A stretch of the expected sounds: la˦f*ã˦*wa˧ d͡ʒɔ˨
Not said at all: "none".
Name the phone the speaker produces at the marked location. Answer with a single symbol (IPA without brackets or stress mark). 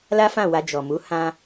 ã˦˨